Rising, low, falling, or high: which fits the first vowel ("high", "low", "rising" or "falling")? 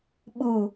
low